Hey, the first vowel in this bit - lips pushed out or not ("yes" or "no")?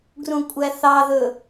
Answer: yes